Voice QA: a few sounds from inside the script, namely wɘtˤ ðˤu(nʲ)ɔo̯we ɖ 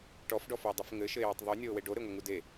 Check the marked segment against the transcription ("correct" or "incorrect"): correct